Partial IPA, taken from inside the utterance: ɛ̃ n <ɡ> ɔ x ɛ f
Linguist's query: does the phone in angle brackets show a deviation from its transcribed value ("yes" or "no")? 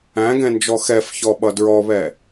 yes